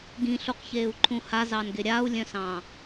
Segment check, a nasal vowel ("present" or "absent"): present